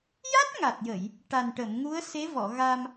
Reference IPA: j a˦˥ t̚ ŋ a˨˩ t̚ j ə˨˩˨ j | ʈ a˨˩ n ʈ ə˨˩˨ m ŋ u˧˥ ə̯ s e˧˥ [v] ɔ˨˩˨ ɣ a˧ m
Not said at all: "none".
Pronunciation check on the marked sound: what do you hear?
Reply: v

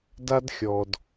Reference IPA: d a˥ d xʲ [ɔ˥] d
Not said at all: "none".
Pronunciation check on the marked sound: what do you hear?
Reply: ɔ˩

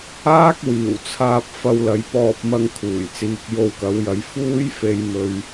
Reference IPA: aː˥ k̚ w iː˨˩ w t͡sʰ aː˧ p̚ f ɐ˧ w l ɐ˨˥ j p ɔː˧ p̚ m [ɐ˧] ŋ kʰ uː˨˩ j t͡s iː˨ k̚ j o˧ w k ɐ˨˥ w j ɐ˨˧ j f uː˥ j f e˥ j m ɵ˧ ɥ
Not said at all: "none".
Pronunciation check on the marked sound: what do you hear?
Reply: ɐ˧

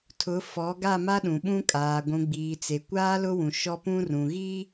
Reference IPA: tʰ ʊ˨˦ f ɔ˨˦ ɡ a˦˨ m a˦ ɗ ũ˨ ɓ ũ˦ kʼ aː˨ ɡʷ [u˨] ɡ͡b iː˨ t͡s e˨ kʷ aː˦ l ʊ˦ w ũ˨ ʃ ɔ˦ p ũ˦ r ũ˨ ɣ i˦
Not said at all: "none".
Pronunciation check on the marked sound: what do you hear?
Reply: ũ˨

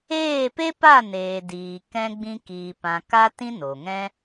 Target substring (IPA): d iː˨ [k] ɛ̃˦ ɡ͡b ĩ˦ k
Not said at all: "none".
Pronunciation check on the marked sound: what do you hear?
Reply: k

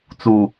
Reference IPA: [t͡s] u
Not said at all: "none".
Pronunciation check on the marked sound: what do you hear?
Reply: t͡s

